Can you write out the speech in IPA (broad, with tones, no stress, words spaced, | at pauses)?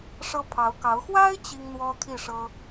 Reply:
ʂɤ˥pʰɑ˧˥ʊ̯kɑ˧˥ʊ̯ xwa˥ɪ̯ t͡ɕi˥ŋn̪wɔ˥ t̪ʰi˥˩ʂɤ˥